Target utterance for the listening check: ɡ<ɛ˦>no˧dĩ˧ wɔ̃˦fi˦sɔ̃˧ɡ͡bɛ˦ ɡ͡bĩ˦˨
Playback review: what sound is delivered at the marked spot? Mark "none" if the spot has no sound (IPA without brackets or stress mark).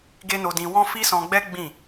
e˦